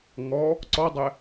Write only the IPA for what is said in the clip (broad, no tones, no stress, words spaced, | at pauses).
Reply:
ŋɔ | ǀɔdˤɛ